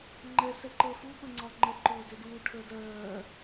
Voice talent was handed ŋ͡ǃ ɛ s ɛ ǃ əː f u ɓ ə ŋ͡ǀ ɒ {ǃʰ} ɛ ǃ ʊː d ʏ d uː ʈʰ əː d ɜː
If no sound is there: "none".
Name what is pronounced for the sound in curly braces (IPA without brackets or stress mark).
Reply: ŋ͡ǃ